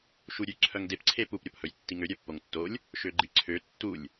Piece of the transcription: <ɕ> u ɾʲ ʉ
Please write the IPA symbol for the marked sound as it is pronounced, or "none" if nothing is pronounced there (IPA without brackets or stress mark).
ʃ